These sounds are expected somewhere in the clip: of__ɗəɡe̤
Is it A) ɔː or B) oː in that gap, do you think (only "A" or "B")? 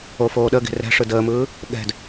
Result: B